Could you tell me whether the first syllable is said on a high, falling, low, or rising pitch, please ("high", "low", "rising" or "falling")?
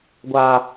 low